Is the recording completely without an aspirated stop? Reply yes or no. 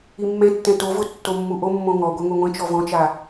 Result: yes